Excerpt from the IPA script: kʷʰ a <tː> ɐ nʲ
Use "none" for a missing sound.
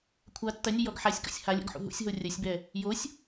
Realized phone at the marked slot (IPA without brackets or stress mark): tː